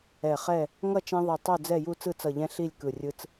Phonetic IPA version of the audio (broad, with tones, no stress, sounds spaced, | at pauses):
ɛ˧˩ χ ɛ˥˨ | ŋ ʌ˥˨ t͡ʃ ɛ̃˦ ðˤ i˧˩ tˤ o˥˨ d͡z ɛ˥˨ j u˥˨ t͡s ɯ˥˨ t͡s ʌ˧˩ ʎ ɛ̃˦ ɬ i˥˨ lʲ k ɯ˧˩ rʲ ɯ˦ t͡s